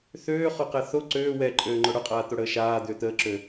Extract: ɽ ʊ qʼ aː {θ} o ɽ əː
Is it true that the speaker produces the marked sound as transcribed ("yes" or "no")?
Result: no